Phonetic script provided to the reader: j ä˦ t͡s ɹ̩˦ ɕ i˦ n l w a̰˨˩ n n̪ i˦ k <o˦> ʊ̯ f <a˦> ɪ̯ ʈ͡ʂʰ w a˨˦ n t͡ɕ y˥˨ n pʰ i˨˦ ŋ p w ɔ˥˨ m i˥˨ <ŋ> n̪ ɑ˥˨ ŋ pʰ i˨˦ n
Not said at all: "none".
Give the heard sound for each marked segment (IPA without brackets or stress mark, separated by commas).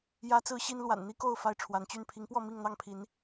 o˥˨, a˦, ŋ